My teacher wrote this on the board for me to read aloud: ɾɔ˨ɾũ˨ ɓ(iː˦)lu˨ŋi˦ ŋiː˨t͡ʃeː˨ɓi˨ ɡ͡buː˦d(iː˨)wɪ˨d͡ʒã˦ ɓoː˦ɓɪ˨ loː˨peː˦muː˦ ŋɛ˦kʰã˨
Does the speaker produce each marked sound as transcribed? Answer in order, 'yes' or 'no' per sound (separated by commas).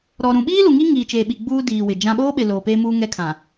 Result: yes, yes